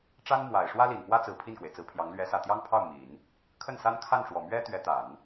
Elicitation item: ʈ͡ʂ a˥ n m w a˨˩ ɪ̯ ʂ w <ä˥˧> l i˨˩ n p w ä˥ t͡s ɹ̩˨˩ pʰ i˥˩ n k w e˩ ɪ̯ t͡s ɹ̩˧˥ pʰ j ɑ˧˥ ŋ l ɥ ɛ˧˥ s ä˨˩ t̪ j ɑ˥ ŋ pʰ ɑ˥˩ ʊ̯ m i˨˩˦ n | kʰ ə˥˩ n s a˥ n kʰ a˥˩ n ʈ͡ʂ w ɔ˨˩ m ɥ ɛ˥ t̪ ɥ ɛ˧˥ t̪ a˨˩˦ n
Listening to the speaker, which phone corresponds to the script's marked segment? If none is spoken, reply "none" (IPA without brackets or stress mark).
ä˥